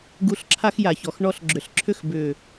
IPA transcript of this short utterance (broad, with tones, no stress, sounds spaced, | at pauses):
ɡ u˧ ɬ ǁʰ a˦ x j a˨ ç ɔ˨ x ɳ ɔ˧ ɬ ɡ͡ǁ ʏ˨ ɬ ǁʰ ʏ˦˨ x b ʏ˨